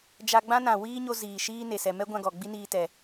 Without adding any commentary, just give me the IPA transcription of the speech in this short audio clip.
d͡ʒa˧ɡ͡bã˦nã˨ wiː˦ɲo˧ ziː˨ʃiː˦ne˨ sɛ˨mɛ˦ ɡʷã˧ɡɔ˨ ɡ͡bi˦niː˧tɛ˨

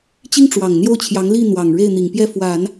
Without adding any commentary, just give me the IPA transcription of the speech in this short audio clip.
t͡ɕi˥ŋʈ͡ʂwɑ˨˩ŋn̪jo˥˩ʊ̯t͡ɕʰjɑ˧˥ŋ li˥˩ n̪wɑ˨˩ŋ ɻe˥˩ɪ̯n̪i˨˩ŋpjɛ˥˩fwa˨˩˦n

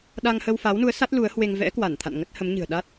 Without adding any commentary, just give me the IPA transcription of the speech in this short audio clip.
ɗa˧ŋ həː˧wfa˨˦wnu˨˦ə̯ sa˦˥t̚ lu˨˦ə̯hwe˧ŋ vɛ̰˧˥kwa˧˩nt̪ʰa̰˧˨n ŋə˦˥t̚hə˨˦mɲɨ̤˨˩ə̯ ɗa˦˥t̚

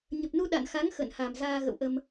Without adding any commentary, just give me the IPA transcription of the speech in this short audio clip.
ɲə˨˩p̚nu˧ ɗa̰˧˨nxa˨˦ŋ xə̰˧˨nha˨˩mzaː˧ ɣə̰˧˨wʔə˧m

